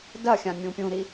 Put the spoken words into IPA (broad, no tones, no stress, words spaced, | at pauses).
dɐxʲã mʲũpʲũɾi